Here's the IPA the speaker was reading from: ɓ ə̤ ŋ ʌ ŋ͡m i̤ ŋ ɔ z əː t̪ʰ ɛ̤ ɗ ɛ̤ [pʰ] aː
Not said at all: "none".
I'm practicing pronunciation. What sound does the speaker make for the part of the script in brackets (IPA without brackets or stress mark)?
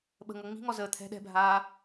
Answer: bʱ